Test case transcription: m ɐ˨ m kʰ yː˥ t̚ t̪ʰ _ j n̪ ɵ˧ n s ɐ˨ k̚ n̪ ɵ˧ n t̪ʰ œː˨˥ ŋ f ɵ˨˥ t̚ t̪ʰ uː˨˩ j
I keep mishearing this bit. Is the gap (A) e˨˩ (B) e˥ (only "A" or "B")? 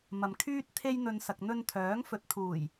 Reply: B